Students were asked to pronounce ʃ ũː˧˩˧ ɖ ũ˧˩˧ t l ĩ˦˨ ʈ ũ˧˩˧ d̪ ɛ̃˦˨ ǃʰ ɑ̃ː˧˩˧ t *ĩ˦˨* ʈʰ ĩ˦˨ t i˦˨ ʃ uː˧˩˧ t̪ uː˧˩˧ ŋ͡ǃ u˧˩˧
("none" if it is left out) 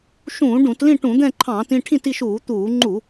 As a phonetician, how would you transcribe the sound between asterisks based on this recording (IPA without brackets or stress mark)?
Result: ĩ˦˨